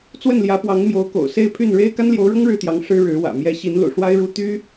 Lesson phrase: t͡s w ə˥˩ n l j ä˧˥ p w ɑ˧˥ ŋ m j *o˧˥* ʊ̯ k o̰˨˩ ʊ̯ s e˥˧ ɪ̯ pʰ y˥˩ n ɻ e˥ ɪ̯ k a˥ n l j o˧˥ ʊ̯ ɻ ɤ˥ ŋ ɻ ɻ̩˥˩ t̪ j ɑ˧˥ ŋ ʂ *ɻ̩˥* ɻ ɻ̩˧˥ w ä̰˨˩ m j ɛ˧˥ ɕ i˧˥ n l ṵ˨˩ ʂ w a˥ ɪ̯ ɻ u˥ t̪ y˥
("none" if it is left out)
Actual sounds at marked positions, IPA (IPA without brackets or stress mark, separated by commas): o˧˥, ɻ̩˥